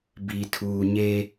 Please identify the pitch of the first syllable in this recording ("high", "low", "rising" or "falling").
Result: low